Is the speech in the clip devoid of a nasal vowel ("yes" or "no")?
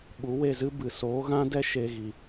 no